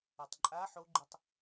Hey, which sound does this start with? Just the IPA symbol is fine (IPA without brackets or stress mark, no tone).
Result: ʌ